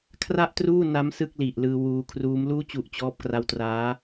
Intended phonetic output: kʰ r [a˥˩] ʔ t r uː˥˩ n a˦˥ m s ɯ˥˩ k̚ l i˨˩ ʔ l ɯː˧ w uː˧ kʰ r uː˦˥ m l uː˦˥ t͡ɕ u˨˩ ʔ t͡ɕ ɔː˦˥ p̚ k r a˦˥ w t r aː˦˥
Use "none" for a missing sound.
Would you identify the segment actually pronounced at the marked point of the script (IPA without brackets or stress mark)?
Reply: a˥˩